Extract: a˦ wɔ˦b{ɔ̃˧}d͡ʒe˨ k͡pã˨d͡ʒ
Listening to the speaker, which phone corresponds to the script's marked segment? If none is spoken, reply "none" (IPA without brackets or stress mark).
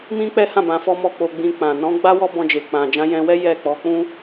ɔ̃˧